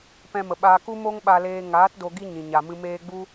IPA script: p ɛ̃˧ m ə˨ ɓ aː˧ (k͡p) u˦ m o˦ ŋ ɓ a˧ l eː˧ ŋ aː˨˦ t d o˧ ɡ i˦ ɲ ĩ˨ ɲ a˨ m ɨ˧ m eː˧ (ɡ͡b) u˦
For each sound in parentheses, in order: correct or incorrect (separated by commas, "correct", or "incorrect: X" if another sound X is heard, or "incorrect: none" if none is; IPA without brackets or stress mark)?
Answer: incorrect: k, correct